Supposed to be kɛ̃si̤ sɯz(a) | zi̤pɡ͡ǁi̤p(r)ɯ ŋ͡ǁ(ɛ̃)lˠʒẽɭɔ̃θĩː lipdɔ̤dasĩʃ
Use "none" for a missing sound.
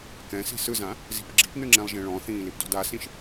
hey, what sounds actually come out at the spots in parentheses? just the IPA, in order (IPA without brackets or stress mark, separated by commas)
ã, n, ɛ̃